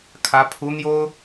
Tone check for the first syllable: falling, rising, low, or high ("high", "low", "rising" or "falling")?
rising